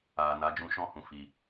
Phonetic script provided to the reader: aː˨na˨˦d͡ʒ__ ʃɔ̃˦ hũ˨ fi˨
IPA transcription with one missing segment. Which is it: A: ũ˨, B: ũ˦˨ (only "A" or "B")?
B